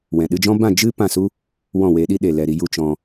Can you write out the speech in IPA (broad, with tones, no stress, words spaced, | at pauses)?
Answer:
wɛ̃˨ɗɨ˧d͡ʒɔ̃˦ bã˦˨ d͡ʒɨ˦ pã˦˨su˦ | wɔ̃˦˨we˨˦ɗi˦ ɗe˨lɛ˨ɾi˧ju˧ t͡ʃɔ̃˧